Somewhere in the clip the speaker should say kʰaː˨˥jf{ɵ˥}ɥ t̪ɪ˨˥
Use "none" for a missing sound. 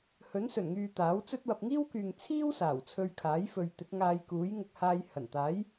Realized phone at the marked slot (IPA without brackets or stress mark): ɵ˨